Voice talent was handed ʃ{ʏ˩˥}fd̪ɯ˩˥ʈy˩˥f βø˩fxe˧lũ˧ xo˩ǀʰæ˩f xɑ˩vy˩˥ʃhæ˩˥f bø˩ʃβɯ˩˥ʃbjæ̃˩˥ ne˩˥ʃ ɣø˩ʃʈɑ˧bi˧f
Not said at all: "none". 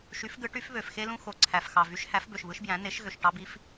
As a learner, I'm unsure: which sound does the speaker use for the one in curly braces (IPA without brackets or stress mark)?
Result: y˩˥